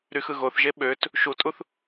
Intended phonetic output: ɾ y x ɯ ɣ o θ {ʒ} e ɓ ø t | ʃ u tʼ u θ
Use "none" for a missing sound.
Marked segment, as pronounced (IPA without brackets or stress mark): ʒ